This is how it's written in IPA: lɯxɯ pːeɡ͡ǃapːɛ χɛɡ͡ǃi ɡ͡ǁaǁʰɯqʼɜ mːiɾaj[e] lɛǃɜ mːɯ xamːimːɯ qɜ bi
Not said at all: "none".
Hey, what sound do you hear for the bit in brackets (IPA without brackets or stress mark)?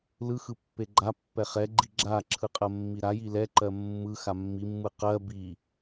i